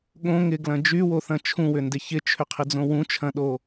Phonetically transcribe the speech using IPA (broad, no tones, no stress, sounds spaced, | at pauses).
ɠ õ ŋ ɪ ɡ l ɐ̃ d͡ʒ y w o θ ɐ̃ t͡ʃʰ ũ w ʏ n d ɪ ç ɪ t͡ʃʰ ʏ qʰ ɪ d͡z õ w ũ t͡ʃʰ ɐ̃ ɗ o